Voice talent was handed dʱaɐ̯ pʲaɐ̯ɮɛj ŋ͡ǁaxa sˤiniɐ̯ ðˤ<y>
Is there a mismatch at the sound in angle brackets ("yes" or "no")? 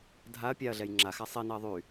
no